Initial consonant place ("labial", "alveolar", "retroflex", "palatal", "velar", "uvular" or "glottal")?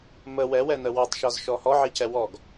labial